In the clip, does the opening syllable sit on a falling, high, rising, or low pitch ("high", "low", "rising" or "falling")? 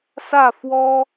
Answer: falling